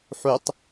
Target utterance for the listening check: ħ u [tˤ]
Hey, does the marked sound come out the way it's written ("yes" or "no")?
yes